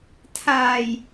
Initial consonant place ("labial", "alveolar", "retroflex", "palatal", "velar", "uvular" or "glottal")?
alveolar